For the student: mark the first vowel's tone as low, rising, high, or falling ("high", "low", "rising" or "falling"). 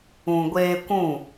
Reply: low